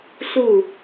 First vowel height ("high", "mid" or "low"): high